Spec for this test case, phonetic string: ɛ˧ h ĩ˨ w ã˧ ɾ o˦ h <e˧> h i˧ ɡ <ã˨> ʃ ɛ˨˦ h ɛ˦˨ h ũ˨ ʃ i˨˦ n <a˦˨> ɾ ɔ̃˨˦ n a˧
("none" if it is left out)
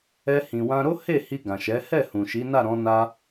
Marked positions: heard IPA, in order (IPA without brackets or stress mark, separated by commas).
e˦˨, ã˨, a˦˨